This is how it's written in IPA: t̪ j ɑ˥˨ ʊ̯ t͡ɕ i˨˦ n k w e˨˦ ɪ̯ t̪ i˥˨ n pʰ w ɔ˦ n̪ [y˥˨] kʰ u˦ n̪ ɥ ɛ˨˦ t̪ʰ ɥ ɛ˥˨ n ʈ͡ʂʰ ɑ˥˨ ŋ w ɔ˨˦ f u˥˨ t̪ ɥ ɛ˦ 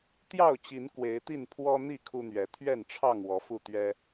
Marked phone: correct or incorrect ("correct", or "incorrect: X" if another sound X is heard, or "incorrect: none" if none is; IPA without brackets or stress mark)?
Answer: incorrect: i˥˨